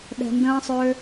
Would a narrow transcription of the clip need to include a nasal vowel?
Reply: yes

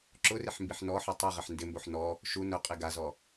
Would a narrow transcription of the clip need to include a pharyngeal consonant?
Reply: yes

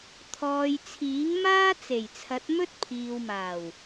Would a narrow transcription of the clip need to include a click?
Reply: no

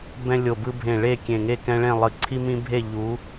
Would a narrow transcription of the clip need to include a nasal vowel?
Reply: yes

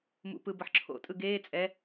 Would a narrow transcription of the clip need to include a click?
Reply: yes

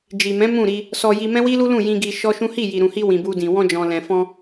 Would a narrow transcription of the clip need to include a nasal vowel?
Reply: yes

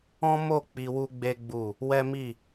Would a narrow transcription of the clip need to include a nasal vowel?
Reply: yes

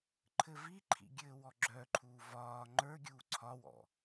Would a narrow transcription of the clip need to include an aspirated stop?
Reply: yes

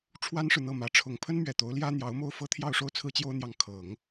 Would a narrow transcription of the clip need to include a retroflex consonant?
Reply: yes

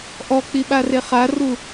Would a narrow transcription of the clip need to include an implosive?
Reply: yes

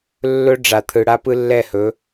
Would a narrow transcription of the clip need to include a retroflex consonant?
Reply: yes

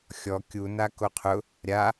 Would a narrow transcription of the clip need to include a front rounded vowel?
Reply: no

